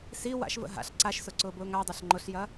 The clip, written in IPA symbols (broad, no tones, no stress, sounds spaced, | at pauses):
s i w a̰ ʃ v ə̰ ɦ a̰ ɬ ǀ a ʃ s ʊ ǀ ʊː b ʊː ŋ a dˤ a ɬ ŋ͡ǃ ʊ ɬ j ɐ